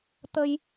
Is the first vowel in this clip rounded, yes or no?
no